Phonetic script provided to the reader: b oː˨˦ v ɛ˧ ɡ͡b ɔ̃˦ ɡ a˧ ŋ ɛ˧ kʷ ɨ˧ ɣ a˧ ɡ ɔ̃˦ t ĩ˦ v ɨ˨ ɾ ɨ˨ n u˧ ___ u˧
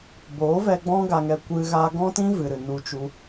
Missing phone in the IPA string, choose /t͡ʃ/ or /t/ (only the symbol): t͡ʃ